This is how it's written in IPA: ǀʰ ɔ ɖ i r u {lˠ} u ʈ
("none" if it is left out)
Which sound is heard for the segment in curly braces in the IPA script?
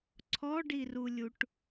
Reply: lʲ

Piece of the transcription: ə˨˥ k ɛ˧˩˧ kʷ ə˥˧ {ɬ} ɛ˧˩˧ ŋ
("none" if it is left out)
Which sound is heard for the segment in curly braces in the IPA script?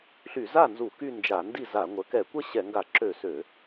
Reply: ɕ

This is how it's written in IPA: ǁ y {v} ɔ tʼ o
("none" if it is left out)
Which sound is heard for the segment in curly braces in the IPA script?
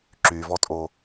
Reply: v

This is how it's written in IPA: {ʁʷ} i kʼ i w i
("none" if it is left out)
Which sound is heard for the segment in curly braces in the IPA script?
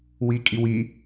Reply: w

